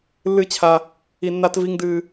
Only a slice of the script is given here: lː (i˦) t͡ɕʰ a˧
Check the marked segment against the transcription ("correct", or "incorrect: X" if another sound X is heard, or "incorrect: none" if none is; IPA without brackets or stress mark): incorrect: ɨ˦